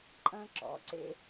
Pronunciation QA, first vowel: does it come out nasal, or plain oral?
nasal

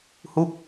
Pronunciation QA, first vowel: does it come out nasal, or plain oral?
oral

